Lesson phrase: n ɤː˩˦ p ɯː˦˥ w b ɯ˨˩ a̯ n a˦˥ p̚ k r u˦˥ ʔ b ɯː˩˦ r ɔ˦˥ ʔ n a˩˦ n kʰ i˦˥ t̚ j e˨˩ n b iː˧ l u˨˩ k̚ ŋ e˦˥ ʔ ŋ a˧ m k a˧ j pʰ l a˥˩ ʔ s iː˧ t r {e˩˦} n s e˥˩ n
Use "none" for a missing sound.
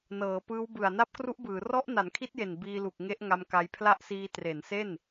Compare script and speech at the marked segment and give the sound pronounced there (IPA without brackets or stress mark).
e˩˦